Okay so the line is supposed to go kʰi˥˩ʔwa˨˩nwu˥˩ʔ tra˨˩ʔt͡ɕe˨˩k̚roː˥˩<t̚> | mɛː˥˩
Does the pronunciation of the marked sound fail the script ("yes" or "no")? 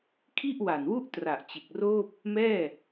yes